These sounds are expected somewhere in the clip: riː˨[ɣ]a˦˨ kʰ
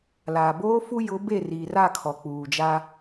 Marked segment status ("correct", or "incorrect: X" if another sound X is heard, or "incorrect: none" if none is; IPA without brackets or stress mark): incorrect: r